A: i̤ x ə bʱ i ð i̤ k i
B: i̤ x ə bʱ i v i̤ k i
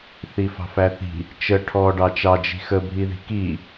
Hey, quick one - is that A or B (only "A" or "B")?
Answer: A